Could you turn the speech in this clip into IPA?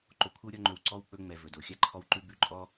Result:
ǃ o˨ kʷʰ ɯ˦ w ɾʲ ɔ˦ ŋ͡ǃ ɵ˨ w ǀ ɔ˥ w k͡p ɵ˦ ŋ͡m ɛ˨ v ɵ˩ d o˩ xʲ a˦ ǃʰ ɔ˦ w ǃ ʉ˦ b ʉ˦ ǃʼ ɔ˥

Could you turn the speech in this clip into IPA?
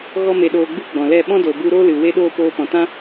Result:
ɣ ɔ˦ m e˧ ɗ oː˧ ɡ͡b ɨ˦ ɡ͡b ɔ̃˨ l ɛ˦˨ ɓ ɔ̃˦ d o˨ b u˧ ɾ oː˦ l ɨ˨ w e˦ ɗ oː˦ p oː˧ p ɔ̃˨ t ã˦

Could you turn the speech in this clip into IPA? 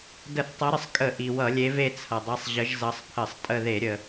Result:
d ə˧˩˧ θ tˤ ʌ˨˦ ɾ ə˩ sˤ kʼ ə˧˩˧ ʔ i˩ w ʌ˧˩˧ lʲ e˨˦ v e˦ t͡sʰ ʌ˩ dˤ i˨˦ sˤ ʑ ə˨˦ ʒ z ʌ˨˦ sˤ pʰ ə˧˩˧ sˤ tʼ ə˦˨ ð e˧˩˧ ɾʲ ə˩

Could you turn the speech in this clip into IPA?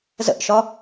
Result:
z ə̰ ʔ ʃ ɒ

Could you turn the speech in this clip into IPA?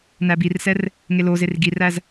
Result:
n æ b i r s ɛ r | ŋ e l o z e r ɡ i r æ z

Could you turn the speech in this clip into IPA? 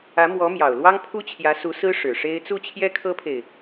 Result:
ä˧˥ m w ɔ˧˥ m j ɑ˨˩ ʊ̯ l w ɑ˥ ŋ pʰ u˥ t͡ɕʰ j ä˧˥ s u˧˥ s ɹ̩˥ ʂ ɻ̩˨˩ ʂ e˥ ɪ̯ t͡s u˥˩ t͡ɕʰ j ɛ˥ kʰ ɤ˥ pʰ e˨ ɪ̯

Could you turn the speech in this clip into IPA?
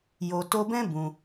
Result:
j o˨ t o˧ b ɛ̃˦ b ũ˧

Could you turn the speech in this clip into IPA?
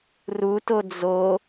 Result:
r u t o d͡z o

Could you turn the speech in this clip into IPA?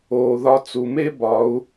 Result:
oː˨ ð ɒ˧ t͡s u˨ m e˦ b ɒ˨˦ u̯

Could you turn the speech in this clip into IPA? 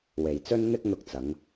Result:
w e˨ j t͡s ɵ˥ n n̪ ɪ˥ k̚ n̪ ʊ˧ k̚ t͡s ɐ˨˧ ŋ

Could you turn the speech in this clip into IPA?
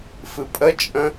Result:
f ɨ pʼ ə t͡ʃʼ ə̃

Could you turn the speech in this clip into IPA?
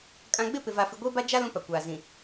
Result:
kʼ ã˨ ɡ͡b ɪ˦˨ p ɪ˨ v a˨ f i˨ ɡʷ eː˦ b a˦ d͡ʒ a˦ l ũ˦ p a˨ kʷ aː˨ z ĩ˨

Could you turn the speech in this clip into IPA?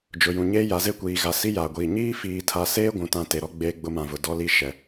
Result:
d͡ʒ ʊ˨ j ũ˨ ɲ eː˦ j a˨˦ z e˦ kʷ iː˨ ɣ a˨ s i˦ j aː˨ ɡʷ iː˨ ɲ iː˦ f iː˨ tʰ a˨ s eː˦ ɡʷ ũ˨ t ã˦˨ t e˨ ɾ ɔ˦ ɡ͡b eː˦ ɡ͡b ʊ˦ m ã˨ v ʊ˨ d ɔ˦ l i˦ ʃ ɛ˨

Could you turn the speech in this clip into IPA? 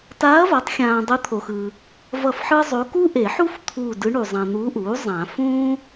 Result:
t aː˧˥ ɐ̯ v a˩˥ tˤ xʲ ãː˨ dˤ ɯ˧˥ t̪ʰ o˨ x ɯ˨ | v ʌ˦˨ f ħ ɯ˥ zˤ o˧˥ k u˥ ʔ e˨˩˦ ħ u˥ f t̪ʰ u˦˨ d ɯ˧˥ ɳ u˨ zˤ ã˨ n̪ u˧˥ ʔ uː˩˥ zˤ ã˨˩˦ f ũː˥

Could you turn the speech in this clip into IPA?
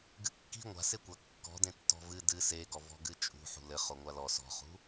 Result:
ɡ ɨ kː i̤ ŋʷ a̤ s e kʷ ɐ kː ɔ̤ d ẽ tː ɔ̤ v ɨ d ɨ s e ɡ ɔ v ɔ̤ ɡ ɨ t͡ʃʼ ṳ ħ ṳ l ɘ χ o ŋʷ a l ɔ s ɔ̤ χ ṳ

